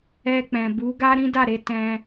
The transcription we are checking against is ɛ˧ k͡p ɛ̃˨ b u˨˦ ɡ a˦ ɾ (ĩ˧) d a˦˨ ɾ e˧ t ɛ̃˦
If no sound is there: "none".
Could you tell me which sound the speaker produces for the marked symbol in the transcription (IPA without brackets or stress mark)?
ĩ˦